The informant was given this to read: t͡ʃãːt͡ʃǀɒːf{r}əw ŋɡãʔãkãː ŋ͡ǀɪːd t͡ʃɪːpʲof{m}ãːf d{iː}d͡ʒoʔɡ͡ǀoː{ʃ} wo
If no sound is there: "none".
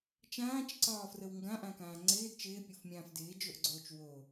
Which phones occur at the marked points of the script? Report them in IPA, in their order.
r, mʲ, ɪː, t͡ʃ

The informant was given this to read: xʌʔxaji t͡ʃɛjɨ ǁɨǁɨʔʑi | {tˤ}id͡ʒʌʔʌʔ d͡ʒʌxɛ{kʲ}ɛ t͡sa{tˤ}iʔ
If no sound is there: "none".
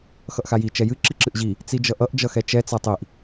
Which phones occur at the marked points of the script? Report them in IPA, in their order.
t͡s, t͡ʃ, tˤ

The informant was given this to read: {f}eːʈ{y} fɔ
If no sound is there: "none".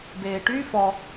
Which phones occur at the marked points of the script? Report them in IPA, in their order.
b, y

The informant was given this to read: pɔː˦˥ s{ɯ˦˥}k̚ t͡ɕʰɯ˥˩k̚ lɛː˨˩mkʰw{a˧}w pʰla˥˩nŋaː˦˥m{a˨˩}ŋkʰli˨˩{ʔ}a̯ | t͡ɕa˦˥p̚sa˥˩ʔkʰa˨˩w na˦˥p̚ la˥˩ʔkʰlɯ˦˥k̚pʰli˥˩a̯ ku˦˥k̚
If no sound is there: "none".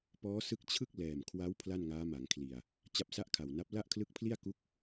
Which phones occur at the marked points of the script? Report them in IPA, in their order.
ɯ˦˥, a˦˥, a˩˦, none

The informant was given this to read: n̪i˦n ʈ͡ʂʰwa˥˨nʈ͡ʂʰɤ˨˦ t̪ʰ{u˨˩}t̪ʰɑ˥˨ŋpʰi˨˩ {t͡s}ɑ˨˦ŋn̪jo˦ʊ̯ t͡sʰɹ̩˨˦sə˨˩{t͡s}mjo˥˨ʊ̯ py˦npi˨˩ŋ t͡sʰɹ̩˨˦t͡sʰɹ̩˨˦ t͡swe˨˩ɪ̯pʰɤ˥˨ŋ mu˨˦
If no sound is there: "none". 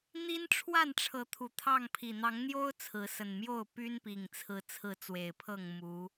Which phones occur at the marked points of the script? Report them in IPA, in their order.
u˨˩, n̪, n

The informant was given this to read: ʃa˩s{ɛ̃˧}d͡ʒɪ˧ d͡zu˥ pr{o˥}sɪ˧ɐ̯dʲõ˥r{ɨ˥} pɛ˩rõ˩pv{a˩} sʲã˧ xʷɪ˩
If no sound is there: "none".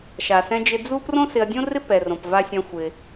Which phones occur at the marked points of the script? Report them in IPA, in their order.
ɛ̃˧, õ˥, ɪ˥, a˧

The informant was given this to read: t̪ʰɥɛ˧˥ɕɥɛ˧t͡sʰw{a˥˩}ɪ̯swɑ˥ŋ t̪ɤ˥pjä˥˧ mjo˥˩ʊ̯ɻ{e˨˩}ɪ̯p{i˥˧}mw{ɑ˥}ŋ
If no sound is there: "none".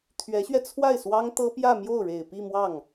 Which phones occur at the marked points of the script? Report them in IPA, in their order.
a˥˩, e˨˩, i˥˧, ɑ˥˩

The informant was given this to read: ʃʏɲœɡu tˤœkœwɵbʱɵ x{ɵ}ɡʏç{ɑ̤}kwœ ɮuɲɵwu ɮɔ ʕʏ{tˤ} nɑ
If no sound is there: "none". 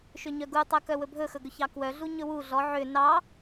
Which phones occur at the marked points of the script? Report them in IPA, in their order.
ɵ, ɑ, none

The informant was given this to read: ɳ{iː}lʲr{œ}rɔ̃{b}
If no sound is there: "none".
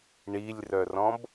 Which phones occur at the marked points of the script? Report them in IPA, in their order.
i, œ, b

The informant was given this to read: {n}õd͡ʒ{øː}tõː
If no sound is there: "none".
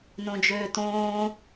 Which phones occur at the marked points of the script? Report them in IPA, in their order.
n, øː

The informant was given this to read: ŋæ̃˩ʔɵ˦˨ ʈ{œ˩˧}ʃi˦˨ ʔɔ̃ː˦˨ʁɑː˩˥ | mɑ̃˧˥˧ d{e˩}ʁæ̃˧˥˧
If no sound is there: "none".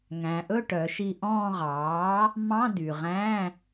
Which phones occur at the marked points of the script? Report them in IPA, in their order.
œ˩˧, y˩

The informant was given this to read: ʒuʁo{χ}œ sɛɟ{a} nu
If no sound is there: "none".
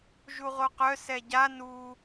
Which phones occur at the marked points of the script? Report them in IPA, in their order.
q, a

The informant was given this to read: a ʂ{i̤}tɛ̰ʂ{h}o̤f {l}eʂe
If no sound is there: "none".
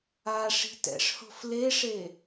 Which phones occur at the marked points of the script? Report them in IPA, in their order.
i̤, h, l

